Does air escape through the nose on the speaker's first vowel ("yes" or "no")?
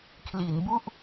no